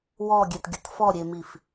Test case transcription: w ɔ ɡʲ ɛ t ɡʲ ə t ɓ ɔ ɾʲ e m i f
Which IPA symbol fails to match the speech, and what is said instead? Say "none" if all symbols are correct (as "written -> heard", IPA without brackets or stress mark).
ɓ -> f